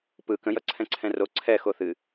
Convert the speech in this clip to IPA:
p ɯ k ə̃ j ʌ ǀʰ ɛ̃ ǀʰ ɛ̃ r o ǀʰ ɛ x o θ ɨ

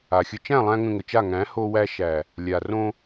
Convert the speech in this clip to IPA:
a˨ xʲ ə˧ t͡ʃ æ̃˦˨ lˠ æ̃˧ ŋ ə̃˧ ŋ ə˨ t͡ʃ a˦˨ ŋ æ̃˨˦ h o˧ w æ˧ ʃ æ˨ | lʲ a˨ r õ˧

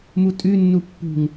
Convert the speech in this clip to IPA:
m u tʼ ʉ nː u pː ṳ ŋ

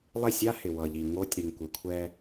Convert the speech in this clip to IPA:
lˠ e˦˨ sʲ a˦ h ɪ˨ w ʌ˨ ʎ i˨ ŋ o˦ tʲ ɾ y˨ ŋ kʷ ɪ˨ kʷʰ ɛ˦

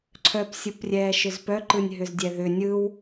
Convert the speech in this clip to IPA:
ǀʰ œ p sʲ ɯ p rʲ ɛː ʃ ʏ z p œ ǃ ɯ nʲ ɦ ʏ z dʲ ɛ ð ʏ nʲ ɯ w

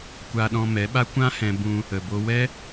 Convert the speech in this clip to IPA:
kʷ a˧ ɗ ɔ̃˧ m ɛ˨˦ ɓ a˦ kʷ ã˦ h ɛ̃˧ b ũ˦ | ə˨ b o˧ w ɛ˦

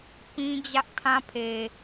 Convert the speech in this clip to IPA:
p ĩ˦ d͡ʑ ä˦ ʔ tʰ ã˦ pʰ e˨

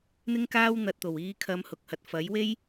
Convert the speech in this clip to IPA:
n̪ ɪ˥ ŋ k aː˥ w n̪ ɐ˧ t̚ t̪ o˨˩ w iː˨˧ kʰ ɐ˨˧ m h ʊ˨ k̚ h ɐ˨ t̚ f ɐ˨˥ j w e˥ j

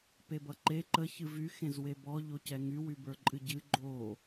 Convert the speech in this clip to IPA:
p e b ʌ ǃ e ǃ ə ç ɨ v y x ẽ z w e b ɔ ʎ o c ɛ ŋ y w y b ə˞ ǃʼ ɨ ɟ ɨ ɡ͡ǃ o

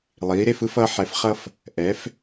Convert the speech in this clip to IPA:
lˠ iː˩˧ ɾ e˧ f ɯ˧ f ʌ˩˧ ħ ɛ˩˧ f χ ʌ˧ f | ʔ ɛ˩˧ f

